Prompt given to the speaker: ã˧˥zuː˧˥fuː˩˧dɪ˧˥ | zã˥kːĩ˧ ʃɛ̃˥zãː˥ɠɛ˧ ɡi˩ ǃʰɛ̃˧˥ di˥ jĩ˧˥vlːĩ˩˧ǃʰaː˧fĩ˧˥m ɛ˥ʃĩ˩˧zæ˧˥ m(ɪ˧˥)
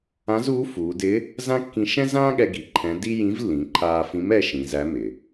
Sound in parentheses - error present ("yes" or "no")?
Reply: yes